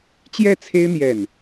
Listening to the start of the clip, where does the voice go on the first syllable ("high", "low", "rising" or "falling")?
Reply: falling